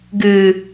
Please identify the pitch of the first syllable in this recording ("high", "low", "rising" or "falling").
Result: low